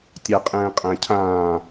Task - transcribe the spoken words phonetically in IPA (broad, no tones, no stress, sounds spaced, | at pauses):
tʲ a qʼ ɛ̃ː qʼ æ̃ cʰ ãː